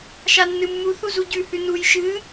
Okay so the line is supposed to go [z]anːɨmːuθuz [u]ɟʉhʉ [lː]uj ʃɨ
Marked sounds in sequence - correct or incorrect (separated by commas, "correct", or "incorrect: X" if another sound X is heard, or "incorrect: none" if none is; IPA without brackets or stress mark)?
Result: incorrect: ʃ, correct, incorrect: n